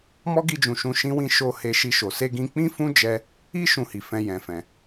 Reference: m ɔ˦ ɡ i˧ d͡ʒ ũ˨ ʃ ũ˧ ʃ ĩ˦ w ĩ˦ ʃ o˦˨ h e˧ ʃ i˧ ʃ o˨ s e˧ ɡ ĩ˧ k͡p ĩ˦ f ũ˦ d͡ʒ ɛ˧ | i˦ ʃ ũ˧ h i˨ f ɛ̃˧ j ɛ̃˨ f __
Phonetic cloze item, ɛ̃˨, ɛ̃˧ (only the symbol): ɛ̃˨